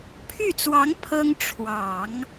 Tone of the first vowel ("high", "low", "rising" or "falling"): falling